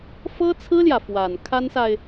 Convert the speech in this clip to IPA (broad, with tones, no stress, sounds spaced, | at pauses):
f ɤ˥ t͡sʰ ɹ̩˥ l j ä˨ f w a˨˩ n kʰ a˥ n s a˨ ɪ̯